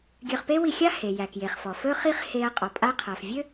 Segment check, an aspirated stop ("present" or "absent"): present